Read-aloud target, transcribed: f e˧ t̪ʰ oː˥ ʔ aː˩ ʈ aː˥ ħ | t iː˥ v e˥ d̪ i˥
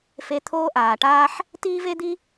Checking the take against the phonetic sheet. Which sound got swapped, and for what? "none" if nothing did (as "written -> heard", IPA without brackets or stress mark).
none